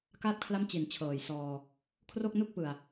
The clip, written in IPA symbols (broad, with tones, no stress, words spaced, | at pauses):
ka˥˩t̚kʰla˥˩mt͡ɕi˨˩n t͡ɕʰɤː˨˩jsɔː˧ | kʰro˥˩k̚nu˥˩k̚pɯ˨˩a̯